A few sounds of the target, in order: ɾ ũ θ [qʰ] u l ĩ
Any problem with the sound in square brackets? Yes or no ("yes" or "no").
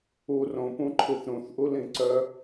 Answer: yes